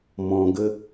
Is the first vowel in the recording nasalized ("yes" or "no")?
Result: yes